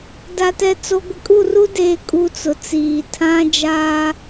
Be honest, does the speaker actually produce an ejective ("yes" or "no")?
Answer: yes